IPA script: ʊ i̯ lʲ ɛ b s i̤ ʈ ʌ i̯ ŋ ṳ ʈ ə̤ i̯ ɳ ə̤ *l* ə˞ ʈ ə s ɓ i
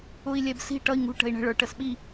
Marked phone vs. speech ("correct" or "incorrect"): incorrect